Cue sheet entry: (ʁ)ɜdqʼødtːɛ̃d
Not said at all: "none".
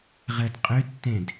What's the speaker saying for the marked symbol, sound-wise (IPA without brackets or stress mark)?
ʁ